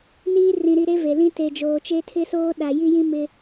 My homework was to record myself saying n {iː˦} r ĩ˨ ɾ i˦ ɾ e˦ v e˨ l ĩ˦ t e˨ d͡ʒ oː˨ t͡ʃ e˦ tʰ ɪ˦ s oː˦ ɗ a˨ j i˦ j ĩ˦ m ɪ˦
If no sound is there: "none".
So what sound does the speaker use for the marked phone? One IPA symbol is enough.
iː˦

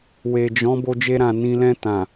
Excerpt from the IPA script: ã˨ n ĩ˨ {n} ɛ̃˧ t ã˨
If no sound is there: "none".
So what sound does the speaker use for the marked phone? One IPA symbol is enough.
l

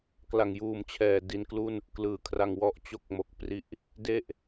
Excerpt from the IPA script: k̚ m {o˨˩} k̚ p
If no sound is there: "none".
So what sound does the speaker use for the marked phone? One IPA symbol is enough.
o˨˩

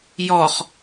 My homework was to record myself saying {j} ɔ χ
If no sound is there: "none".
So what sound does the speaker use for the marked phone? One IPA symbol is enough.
j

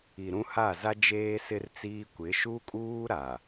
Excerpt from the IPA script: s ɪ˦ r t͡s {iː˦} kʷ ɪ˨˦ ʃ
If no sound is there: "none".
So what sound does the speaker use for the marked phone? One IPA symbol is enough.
iː˦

